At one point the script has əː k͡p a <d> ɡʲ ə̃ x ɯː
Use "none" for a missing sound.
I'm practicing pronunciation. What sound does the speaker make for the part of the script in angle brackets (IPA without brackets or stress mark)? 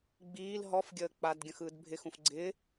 d